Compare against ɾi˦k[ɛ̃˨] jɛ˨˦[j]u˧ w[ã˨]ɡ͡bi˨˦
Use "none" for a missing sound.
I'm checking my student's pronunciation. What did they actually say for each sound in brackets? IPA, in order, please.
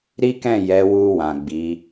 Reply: ɛ̃˦˨, w, ã˨

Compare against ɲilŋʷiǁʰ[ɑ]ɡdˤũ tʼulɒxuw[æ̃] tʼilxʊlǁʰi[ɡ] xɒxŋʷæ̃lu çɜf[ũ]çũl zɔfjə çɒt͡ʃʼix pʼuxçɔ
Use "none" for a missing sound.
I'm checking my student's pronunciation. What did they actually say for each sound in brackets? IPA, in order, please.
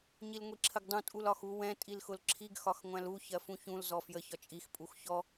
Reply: ə, ɛ̃, ɡ, ũ

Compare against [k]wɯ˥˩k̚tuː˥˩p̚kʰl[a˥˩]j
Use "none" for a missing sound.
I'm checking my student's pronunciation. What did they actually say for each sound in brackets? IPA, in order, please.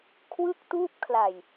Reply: kʰ, a˨˩

